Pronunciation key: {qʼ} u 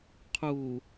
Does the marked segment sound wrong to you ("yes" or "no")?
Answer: yes